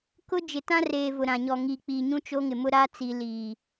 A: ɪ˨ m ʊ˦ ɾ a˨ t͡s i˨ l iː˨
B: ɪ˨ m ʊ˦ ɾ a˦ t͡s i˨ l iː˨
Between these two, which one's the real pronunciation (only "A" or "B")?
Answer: B